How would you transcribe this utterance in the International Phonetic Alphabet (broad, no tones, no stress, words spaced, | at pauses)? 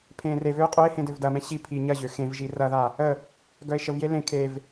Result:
pʰẽːrevøː qʼøe̯ hẽdøvdɐmɛ̃ ɕi pʰi ɲɐʑø xẽvʒi rɐða | ə | ɡœe̯ʃəvje lẽ kʰev